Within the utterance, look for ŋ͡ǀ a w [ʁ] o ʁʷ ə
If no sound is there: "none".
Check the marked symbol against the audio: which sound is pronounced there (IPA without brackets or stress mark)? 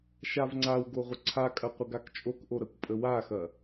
ɡ